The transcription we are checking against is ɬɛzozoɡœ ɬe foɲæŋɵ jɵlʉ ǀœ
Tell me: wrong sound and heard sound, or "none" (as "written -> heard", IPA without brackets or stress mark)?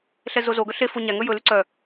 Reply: none